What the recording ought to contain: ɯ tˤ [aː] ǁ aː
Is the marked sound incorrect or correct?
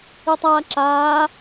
correct